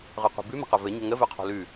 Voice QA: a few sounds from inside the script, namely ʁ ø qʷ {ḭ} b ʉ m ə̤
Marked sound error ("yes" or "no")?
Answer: yes